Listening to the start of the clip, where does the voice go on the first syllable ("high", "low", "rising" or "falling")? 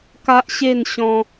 high